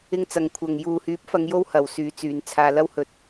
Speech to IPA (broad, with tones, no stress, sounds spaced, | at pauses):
ɪ˧ ŋ t͡s ɐ˨ ŋ kʷʰ ɐ˨ ŋ j uː˨ h yː˨˥ p̚ f ɐ˨˧ ŋ j o˧ w h ɐ˨ w s yː˨˧ t͡s yː˨˧ n t͡sʰ aː˧ l ɐ˥ w h ɵ˧ t̚